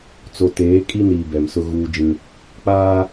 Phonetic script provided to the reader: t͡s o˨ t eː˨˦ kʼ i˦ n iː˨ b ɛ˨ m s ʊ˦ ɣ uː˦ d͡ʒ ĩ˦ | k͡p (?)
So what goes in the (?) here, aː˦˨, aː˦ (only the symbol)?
aː˦